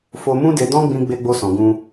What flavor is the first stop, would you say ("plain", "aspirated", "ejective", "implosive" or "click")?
plain